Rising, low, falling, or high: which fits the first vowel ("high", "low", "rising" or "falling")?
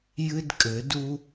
high